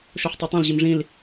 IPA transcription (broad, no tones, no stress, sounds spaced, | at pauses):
ʃ o ħ tˤ i tˤ ẽ l ʑ i m ʐ ĩ l